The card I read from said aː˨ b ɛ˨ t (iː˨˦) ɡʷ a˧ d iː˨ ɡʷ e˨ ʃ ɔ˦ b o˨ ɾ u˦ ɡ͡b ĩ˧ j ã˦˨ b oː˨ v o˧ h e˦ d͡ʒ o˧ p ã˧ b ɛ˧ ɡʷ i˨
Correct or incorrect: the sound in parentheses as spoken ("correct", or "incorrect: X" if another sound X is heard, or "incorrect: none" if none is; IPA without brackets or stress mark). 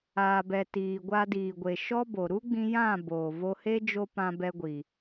incorrect: iː˨